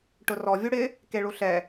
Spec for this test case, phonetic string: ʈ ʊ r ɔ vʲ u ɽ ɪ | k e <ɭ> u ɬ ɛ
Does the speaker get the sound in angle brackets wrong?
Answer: no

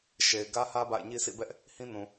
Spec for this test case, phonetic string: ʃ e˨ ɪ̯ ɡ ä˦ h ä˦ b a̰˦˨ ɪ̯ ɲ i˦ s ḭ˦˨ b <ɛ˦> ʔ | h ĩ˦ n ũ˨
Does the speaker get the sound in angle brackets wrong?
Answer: no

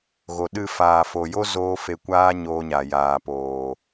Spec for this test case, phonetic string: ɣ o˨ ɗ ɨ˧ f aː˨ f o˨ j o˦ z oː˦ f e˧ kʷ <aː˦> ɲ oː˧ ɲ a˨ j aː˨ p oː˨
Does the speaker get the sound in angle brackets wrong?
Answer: no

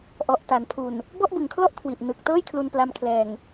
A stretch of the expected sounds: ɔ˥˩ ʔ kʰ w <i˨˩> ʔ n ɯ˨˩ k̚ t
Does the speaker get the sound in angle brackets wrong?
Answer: no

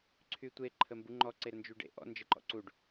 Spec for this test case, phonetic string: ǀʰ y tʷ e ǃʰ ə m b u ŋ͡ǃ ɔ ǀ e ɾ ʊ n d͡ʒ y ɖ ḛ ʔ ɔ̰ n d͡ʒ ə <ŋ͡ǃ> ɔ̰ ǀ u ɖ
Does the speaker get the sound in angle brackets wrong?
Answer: yes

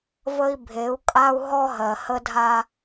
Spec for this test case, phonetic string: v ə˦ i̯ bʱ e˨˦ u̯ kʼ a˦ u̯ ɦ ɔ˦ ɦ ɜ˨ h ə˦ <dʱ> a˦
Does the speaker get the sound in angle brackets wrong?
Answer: no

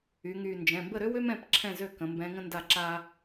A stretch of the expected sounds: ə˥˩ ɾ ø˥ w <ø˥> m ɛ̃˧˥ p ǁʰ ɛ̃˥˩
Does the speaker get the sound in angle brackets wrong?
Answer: no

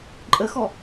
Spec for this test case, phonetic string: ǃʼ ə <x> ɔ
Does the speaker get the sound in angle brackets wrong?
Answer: no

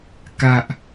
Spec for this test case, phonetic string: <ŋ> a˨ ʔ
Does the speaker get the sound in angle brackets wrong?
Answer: yes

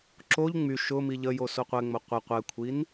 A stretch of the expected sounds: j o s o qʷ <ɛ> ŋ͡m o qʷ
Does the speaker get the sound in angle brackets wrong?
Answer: no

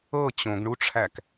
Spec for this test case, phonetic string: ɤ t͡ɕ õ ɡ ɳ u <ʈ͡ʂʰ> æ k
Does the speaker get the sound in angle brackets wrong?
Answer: no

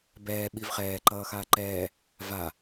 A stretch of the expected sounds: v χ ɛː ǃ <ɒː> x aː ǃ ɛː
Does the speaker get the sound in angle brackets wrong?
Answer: yes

